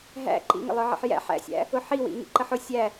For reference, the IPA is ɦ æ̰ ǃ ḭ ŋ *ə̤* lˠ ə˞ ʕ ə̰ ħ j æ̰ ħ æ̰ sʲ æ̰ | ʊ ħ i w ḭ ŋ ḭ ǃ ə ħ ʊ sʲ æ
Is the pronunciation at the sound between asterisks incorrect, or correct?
incorrect: ə̰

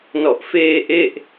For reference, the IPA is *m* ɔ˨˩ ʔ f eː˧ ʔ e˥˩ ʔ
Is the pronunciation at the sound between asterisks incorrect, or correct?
incorrect: n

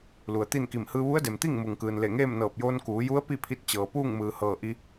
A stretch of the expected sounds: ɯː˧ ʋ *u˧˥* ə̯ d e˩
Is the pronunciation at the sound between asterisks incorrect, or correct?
correct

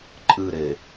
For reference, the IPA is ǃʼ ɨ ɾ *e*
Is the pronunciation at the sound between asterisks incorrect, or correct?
correct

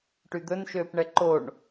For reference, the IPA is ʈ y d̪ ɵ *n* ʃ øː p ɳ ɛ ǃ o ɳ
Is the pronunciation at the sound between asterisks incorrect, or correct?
correct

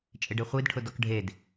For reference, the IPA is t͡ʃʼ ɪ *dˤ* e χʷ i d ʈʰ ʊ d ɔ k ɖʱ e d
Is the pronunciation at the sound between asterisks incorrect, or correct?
incorrect: ɖ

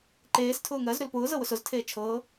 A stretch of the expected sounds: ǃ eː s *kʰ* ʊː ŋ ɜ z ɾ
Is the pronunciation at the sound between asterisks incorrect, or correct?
incorrect: tʰ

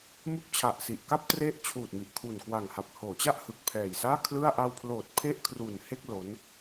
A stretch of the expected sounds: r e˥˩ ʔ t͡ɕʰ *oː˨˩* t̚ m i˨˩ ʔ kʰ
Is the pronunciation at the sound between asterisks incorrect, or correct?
incorrect: uː˨˩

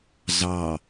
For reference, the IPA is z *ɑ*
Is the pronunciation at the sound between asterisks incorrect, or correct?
correct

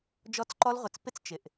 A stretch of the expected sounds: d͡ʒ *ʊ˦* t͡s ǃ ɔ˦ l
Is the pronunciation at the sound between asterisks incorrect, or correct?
incorrect: ɔ˦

